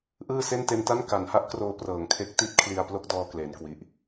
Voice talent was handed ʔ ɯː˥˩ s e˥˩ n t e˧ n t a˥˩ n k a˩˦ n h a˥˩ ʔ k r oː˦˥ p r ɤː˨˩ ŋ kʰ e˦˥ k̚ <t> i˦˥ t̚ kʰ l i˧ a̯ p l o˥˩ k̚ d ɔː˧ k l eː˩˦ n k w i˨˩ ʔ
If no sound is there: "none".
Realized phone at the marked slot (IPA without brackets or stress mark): t